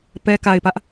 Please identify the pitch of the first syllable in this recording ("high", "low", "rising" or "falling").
low